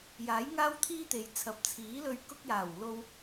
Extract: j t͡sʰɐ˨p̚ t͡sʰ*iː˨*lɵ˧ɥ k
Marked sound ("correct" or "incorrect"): incorrect